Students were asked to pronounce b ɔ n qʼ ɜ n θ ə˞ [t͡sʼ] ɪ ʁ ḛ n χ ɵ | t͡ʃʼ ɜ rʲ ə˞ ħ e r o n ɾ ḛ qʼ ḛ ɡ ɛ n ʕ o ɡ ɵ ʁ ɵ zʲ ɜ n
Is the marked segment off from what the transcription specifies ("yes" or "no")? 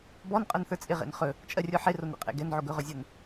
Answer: no